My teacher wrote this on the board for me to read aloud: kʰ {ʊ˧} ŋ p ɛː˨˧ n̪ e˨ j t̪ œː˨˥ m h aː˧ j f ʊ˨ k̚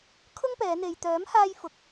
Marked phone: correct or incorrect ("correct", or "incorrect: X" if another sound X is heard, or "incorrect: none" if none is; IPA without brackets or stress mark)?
incorrect: ʊ˥